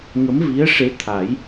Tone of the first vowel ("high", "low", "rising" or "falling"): rising